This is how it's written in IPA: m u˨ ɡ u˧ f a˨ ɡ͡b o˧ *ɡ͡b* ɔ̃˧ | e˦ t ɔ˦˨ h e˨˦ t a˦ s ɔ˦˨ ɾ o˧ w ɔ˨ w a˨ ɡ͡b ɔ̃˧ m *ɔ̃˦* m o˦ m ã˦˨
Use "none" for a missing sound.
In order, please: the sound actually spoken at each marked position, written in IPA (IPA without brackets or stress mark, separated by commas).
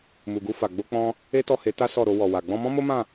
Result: k͡p, ɔ̃˦